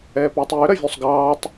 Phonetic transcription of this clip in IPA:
ɛːpøːtˤjø ɾɐvʲusˤɡɑːtˤ

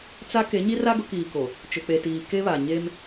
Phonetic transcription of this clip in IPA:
t͡sa˦ ke˨˦ɲi˦ra˦ ɡʊ˨˦kiː˨ko˨ | t͡ʃʊ˨k͡pe˨tiː˨ ke˦βa˨ ɲe˦m

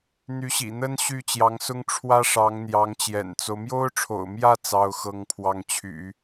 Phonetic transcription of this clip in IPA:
n̪y˧˥ɕḭ˨˩n̪ə˥n ɕy˥˩t͡ɕjɑ˧˥ŋsʊ˥ŋ ʈ͡ʂʰwä˥ʂɑ˧˥ŋ n̪jɑ˧˥ŋt͡ɕjɛ̰˨˩nt͡so˦ʊ̯ mjo˥ʊ̯ʈ͡ʂʰo̰˨˩ʊ̯mjä˥˩ t͡sɑ˥ʊ̯xɤ˥ŋpʰwɑ˥˩ŋ t͡ɕʰy̰˨˩˦

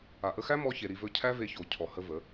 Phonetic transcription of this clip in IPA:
a˨ʔə˧xæ˦ mɔ˧çe˨ ɾi˧vɵ˦ cʰæ˦ve˧ço˨ cʰɔ˨ hə˦ və˨˦

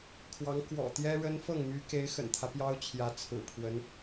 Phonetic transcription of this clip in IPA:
kʰwɑ˧˥ŋ kwɔ̰˨˩t̪jɛ˥ɻə˥n fɤ˥˩ŋmy˧˥ke˧˥ɪ̯ xə̰˨˩nt̪ʰä˦ pjɑ˥ʊ̯ t͡ɕʰjä˧˥t͡sʰɹ̩˨˩pʰwə˧˥n

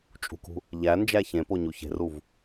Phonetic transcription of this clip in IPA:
t͡ʃʼṳkṳ | ʎæ nd͡ʒæçẽpo ɲuçe̤ruv

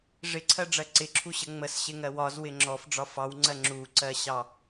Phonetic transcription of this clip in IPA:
ʐɪǀʰɜɖ͡ʐɜ ǀɪǁʰuɕə ŋ͡məsɕɪŋɜ wɒzwɪ ŋ͡ǁɔfɖ͡ʐɒ fɑwŋ͡ǀɜ ŋ͡ǁuǀɜɕɑ

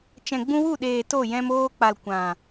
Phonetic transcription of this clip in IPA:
t͡ʃɛ̃˨ɡ͡bũ˧wu˦˨ɗeː˨ to˦˨jɛ̃˧m oː˧k͡pa˨l kʷã˨

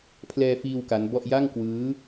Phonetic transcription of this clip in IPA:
pʰlɛː˧fiː˧w ka˦˥nbɔ˥˩ʔ ja˥˩ŋkwɯː˦˥

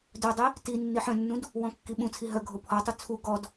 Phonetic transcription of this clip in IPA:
dœdˤi | ti nːiħœ̃nːũd | wɔ̃kːiɓũt͡sʰi ɦœɡʱo pʰɔtˤu t͡sʰu ɡɔd

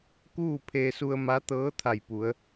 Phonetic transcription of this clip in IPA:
kuː˥˨pʰeː˧su˧ə̯ ma˧˥t̪ɤː˧˥ t̪ʰa˧˩jpu˩˧ə̯

